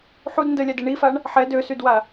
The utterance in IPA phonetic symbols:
ħud ndəlʲade ɳifaɳ | ħɛ døsydwa

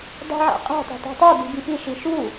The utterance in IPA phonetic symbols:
dˤṳʕæ̰qʼe̤tˤe̤ tˤe̤tˤodi̤ bipiʃi ʃu

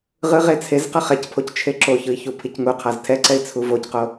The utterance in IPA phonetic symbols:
ʁɯʁe t͡sʰez qʌχɛcpʰoc t͡ʃʰeǁoçɯi̯ çupʰicŋuqʰaz tʰɛǀɛi̯ t͡sʰuvocqo

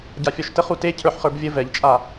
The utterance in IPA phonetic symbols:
ɟafʲɔʃtəχ ute cʰə˞ħχə˞bvʲə vɛʎt͡ʃʼa

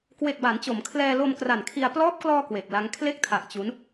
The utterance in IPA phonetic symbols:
kwe˨˩k̚ba˩˦nt͡ɕo˩˦m kʰlɛː˧lo˧m kra˨˩n kʰi˧a̯ plɔː˦˥p̚klɔː˧ kwe˨˩k̚la˦˥ŋ kʰle˦˥k̚tʰa˨˩ʔ t͡ɕu˦˥n

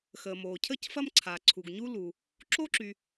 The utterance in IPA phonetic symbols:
xəː˩moː˩ cʰə˥cfɐ˥m ǀʰa˩ ǀʰu˩ɡɲuː˥luː˩ | ǁo˥ǁy˩

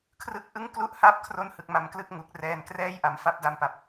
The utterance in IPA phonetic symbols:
kʰrɯ˥˩k̚ʔɯ˥˩ŋ klu˥˩ʔha˥˩p̚ kʰro˥˩nhɯ˨˩k̚ma˧mklɯ˥˩k̚ ŋu˨˩k̚rɛː˧n krɛː˥˩jʔa˩˦m fa˦˥p̚da˧mpa˨˩p̚

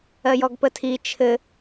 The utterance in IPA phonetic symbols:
ɜjɔɡpətʰi t͡ʃʰɘ

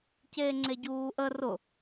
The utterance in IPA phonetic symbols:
ceːŋ͡ǀeɟuːʔə rʊ

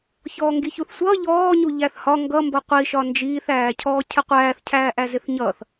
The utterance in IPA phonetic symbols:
çɔːŋɡiçuθsʷʌː ʎɔːɲu ʎæθhɒ ŋɡʌ mbʌqʷiʃɒ nd͡ʒiːθæːcʰɔː cʰɪqʷæːθ cʰæːʔæzɪθɲʌːθ

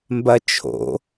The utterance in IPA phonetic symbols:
mbɐt͡ʃʰo̰

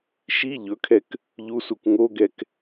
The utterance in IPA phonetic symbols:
ʃi ʎɵkʰɛk | ʎusuk ŋoɡɛk

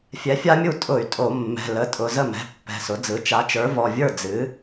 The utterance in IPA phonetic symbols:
fʲɛ˩˥fʲa˦˥mʲu˥˩ tʼʊ˧˩˧y̯tʼo˧˩˧ mːɛ̤˩˧˩lə˩˧˩ tʼʊ˩˧˩ zə˥˩mɛ̤˩˧˩ pːɛ̤˩˧˩sʊ˩˥d͡zɯ˩˥ t͡ʃa˩˥t͡ʃə˞˩˥vɔ˩˧˩vʲə˞˥˩ d͡zɨ˩˥

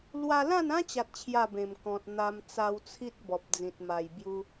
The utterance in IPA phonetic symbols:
lwa˧lã˥˧nã˦ t͡ɕa˦t̚t͡ɕʰja˥˧bẽ˨˩m kɔ̃˨t̚n̪a˧m t͡sa˧wt͡sʰi˦t̚ bɔ˨p̚d͡zĩ˨t̚ma˨˩j bju˧

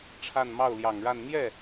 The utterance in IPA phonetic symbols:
ʈ͡ʂʰa˥˧nmɑ˥˩ʊ̯ljɑ˨˩ŋɻa˥˧n n̪jɛ˥˩

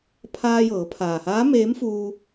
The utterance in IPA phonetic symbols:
pʰaː˧jɤː˩˧pʰaː˩haː˧˥ meː˧˥mfuː˧

